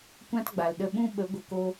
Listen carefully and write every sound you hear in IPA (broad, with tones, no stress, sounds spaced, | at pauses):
kʷ ã˦ t ɡ͡b a˨ l ɗ ə˧ ɓ ũ˦ ɓ ə˨˦ ɡʷ ə˧ k o˦